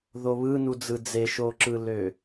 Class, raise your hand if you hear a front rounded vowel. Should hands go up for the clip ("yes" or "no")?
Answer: yes